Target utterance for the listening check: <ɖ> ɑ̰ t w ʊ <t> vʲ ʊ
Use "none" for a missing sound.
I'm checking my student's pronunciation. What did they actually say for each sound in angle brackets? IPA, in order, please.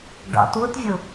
ɖ, t

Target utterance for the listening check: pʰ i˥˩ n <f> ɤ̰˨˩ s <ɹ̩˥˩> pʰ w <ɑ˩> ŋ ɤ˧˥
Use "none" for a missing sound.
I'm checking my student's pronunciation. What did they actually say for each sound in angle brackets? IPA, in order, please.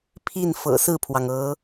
f, ɹ̩˥˩, ɑ˩

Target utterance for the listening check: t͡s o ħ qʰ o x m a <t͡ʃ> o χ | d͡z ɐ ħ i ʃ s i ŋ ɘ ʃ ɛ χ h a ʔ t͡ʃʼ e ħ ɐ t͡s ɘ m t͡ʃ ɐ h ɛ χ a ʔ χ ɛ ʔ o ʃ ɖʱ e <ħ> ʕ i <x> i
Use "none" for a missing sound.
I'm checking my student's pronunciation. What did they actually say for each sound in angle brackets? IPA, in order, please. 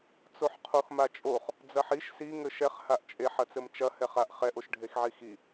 t͡ʃʼ, x, x

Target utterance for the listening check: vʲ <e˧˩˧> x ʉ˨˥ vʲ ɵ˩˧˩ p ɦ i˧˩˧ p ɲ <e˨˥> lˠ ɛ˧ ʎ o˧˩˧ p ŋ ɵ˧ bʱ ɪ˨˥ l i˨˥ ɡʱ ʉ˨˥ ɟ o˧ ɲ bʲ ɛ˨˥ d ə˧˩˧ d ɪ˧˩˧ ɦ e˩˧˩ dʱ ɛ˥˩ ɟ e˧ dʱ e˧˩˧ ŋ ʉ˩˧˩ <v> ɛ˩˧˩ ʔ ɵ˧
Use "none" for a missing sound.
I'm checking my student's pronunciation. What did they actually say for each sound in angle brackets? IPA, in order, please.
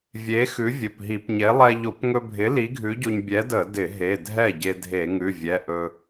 e˨˥, e˨˥, vʲ

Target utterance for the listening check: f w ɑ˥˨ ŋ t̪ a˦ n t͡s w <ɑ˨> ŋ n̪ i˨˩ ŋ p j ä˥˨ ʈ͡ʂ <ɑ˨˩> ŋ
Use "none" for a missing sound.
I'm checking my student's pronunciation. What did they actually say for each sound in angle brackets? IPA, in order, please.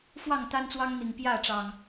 ɑ˦, ɑ˨˩

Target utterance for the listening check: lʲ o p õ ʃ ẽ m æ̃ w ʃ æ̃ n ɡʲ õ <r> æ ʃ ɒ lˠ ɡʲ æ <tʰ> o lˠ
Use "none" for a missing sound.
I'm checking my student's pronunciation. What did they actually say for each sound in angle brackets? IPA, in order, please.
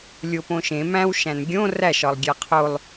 r, qʰ

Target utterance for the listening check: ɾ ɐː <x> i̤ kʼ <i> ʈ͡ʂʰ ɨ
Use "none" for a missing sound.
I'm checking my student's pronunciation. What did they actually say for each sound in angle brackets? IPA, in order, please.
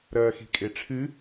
x, e

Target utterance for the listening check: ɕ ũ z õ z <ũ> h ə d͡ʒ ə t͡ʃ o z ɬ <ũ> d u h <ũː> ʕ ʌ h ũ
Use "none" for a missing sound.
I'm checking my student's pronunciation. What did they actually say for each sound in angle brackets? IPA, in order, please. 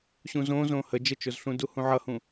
õ, ũ, ũ

